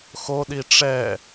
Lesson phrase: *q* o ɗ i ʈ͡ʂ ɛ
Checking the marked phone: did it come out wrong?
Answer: yes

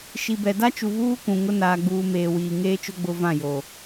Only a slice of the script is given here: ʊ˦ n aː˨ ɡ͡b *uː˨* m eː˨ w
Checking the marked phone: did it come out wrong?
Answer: no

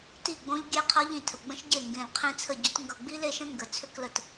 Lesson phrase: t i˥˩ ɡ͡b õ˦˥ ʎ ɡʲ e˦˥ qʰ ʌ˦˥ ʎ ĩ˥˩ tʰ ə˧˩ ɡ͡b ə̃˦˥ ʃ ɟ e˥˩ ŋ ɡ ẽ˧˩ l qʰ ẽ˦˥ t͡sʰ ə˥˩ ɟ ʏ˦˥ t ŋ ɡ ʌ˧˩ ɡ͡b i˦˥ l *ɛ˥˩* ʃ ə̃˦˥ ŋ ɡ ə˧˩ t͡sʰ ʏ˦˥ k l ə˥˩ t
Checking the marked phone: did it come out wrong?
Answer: yes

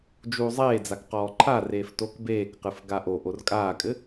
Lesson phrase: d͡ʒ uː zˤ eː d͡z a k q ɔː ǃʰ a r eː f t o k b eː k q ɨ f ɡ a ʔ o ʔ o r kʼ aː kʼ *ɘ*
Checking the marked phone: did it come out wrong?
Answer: no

